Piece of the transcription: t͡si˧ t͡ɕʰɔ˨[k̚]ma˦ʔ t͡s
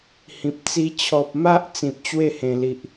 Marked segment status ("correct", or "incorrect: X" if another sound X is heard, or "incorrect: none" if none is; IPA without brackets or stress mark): incorrect: p̚